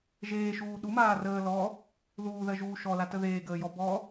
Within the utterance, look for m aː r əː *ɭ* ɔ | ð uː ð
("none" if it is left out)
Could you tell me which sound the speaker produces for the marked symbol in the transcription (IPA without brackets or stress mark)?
l